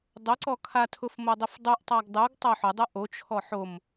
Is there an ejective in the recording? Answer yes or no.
no